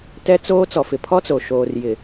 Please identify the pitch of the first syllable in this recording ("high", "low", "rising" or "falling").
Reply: high